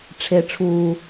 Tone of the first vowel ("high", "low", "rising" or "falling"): high